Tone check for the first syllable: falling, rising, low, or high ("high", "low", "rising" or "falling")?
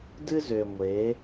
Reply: high